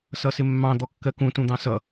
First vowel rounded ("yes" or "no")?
no